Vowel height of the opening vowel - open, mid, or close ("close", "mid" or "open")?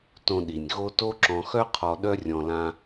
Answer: mid